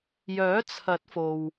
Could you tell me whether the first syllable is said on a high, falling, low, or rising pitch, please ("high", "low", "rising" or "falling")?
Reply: rising